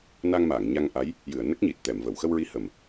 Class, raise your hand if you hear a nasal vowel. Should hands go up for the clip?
no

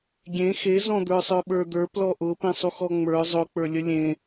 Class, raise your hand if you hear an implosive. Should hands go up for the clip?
yes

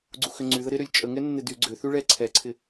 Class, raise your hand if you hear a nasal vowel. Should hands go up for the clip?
no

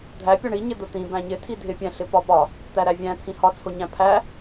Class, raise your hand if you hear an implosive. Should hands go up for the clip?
no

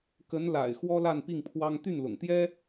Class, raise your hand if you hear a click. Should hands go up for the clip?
no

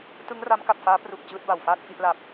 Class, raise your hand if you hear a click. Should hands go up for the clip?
no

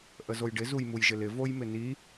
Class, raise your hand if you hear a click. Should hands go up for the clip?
no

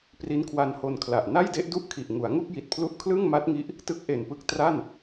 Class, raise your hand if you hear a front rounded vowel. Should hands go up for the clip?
no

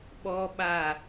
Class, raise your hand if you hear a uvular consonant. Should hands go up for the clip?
no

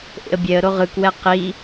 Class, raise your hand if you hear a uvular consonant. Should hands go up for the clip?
yes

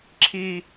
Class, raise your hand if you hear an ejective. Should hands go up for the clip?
no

